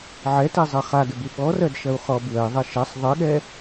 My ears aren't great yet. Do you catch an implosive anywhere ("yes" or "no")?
yes